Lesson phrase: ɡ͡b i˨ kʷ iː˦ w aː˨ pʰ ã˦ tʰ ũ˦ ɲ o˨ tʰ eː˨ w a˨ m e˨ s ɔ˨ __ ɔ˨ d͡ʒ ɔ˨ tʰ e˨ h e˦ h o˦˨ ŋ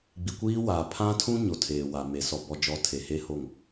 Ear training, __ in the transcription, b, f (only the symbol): b